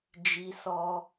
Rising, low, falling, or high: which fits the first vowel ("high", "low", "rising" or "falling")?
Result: low